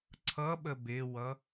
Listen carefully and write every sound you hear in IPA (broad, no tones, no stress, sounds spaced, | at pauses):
ǀʰ ʌ ɓ ə b ɪ w ʌ